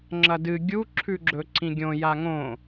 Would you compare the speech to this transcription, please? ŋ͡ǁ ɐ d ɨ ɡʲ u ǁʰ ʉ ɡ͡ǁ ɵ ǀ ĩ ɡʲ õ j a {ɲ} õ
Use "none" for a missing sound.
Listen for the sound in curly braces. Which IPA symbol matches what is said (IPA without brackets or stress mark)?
ŋ